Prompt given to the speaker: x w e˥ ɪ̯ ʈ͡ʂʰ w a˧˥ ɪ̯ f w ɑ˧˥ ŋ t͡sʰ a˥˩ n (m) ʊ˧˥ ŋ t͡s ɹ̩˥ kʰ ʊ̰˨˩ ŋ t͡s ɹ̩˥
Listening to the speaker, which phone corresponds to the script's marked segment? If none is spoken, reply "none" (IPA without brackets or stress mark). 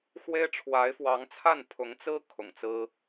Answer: pʰ